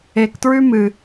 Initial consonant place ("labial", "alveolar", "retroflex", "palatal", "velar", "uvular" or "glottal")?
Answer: velar